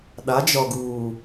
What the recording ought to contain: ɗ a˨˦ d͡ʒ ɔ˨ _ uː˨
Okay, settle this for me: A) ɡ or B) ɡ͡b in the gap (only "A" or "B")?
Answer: A